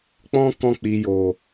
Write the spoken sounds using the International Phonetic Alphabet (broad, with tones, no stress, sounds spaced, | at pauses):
k͡p ɔ̃˦ k ɔ̃˧ k͡p i˨ j o˨